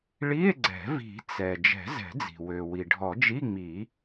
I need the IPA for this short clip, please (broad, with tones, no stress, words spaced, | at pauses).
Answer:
ɭi˧˥˧e̯ɡ͡ǀɛ̤˨˩˦ vi̤˨˩˦ t͡sɛ˩ d͡ʒɛ̤˨˩˦zɛ̤˨˩˦d͡zi̤˩ wø˩ wi˩ɖʱɔ˨˩˦d͡ʒi˧˥˧ŋ͡mi˨˩˦